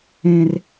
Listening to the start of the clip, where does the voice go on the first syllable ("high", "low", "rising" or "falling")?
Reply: high